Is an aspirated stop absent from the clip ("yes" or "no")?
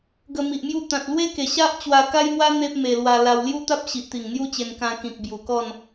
yes